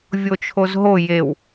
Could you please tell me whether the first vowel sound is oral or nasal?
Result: oral